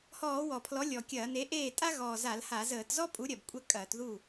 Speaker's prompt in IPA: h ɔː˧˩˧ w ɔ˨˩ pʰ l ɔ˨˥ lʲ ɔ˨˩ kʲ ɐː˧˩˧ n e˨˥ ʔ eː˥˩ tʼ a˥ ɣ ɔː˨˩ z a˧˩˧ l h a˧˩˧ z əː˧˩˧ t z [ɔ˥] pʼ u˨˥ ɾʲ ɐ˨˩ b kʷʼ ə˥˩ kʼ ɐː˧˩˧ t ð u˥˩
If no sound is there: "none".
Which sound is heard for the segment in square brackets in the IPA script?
ɔ˥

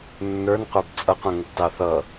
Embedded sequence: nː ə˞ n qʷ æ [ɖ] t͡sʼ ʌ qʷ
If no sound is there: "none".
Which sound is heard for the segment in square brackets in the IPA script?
b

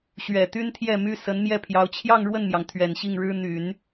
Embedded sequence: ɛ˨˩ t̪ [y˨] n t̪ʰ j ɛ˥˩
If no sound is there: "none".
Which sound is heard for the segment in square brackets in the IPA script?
y˥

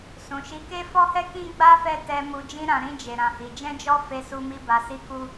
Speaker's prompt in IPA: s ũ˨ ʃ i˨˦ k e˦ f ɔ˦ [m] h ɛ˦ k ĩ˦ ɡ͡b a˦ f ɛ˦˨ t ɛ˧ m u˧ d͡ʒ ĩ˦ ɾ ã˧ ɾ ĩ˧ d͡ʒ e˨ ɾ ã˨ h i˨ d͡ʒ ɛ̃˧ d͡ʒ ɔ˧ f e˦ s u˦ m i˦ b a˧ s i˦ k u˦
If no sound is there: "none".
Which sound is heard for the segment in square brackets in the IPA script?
none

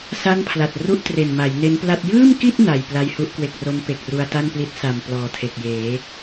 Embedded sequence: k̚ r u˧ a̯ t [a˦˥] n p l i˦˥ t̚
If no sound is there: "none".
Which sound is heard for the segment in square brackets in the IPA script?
a˥˩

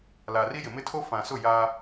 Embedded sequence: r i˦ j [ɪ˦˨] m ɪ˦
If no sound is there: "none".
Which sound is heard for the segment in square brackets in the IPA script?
ɪ˨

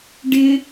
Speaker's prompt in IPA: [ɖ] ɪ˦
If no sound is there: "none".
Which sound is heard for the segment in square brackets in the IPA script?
ɖ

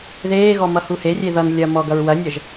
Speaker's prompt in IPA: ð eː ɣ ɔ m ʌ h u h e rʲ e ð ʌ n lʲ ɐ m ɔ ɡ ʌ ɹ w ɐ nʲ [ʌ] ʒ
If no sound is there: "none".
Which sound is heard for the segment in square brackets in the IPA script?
ʌ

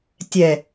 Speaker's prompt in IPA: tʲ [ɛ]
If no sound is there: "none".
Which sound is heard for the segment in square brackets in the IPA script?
ɛ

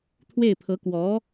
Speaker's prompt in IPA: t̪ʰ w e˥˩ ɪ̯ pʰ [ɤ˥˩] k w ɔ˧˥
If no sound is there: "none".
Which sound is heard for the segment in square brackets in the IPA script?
ɤ˧˥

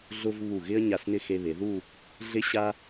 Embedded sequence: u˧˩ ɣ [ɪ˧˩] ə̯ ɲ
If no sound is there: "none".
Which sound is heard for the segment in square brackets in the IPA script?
ɪ˥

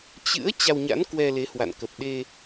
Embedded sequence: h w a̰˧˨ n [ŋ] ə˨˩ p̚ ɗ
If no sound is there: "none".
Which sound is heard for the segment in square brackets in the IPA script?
k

